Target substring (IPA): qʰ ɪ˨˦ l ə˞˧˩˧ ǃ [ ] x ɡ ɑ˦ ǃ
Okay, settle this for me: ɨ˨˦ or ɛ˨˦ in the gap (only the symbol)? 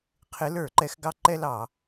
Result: ɛ˨˦